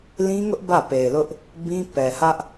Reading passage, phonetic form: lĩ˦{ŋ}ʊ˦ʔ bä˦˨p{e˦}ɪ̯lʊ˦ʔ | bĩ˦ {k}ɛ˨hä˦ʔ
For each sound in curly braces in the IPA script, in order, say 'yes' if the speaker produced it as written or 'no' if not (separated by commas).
yes, no, no